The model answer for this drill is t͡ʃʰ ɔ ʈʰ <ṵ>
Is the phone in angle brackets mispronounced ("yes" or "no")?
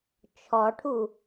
yes